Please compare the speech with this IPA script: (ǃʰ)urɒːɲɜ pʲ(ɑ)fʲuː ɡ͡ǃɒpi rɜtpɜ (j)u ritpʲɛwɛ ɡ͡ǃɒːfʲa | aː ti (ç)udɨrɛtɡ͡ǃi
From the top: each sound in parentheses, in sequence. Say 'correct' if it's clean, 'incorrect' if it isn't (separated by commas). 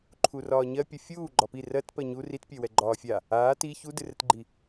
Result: correct, incorrect, incorrect, correct